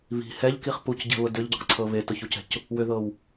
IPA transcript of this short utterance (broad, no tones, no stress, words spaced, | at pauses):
βi̤ hɛʎkiχ pucɟɛ̤βʊ dʏʎɟəqǀʰɤ βetʊçucɛ̤c | wʏðɤw